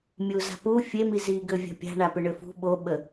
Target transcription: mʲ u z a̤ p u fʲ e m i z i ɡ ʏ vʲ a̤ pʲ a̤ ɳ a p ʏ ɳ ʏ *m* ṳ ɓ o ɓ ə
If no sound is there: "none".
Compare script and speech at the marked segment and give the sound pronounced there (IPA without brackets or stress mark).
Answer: f